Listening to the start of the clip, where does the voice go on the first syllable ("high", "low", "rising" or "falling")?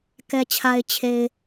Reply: low